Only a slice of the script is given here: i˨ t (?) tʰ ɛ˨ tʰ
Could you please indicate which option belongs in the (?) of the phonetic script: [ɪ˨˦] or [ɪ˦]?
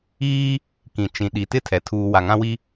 ɪ˦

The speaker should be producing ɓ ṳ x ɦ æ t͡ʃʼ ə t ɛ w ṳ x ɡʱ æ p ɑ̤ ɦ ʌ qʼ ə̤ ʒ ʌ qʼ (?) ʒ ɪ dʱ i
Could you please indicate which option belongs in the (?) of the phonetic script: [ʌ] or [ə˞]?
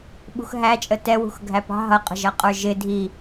ə˞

